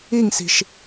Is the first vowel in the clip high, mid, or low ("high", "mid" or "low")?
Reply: high